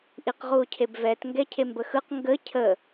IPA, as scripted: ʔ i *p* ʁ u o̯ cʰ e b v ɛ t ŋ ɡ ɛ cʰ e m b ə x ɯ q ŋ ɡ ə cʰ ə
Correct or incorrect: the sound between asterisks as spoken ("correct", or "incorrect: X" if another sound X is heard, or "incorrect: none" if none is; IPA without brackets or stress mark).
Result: incorrect: q